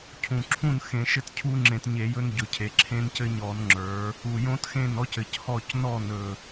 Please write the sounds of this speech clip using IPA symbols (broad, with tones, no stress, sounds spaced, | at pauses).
cʰ ũ˨˩ ǁʰ ũ˥˨ n x ẽ˧˩˧ ʃ ɘ˥˨ t cʰ u˦ ŋ͡ǁ ẽ˧˩˧ t ɲ e˧˩˧ j ɵ˦ n ɟ ɵ˨˩ cʰ e˩˧ ǁʰ ẽ˦ n c ɘ˦ ɲ ɔ˧˩˧ n ŋ͡ǁ ə˞˩˧ | u˨˩ j õ˦ t x ẽ˥˨ n ɔ˦ c ɘ˨˩ c h ɔ˥˨ c n ɔ˥˨ n ɵ˨˩